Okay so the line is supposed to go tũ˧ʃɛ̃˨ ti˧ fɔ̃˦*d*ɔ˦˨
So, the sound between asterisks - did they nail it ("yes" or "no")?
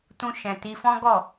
no